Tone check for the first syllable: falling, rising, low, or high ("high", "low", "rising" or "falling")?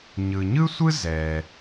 low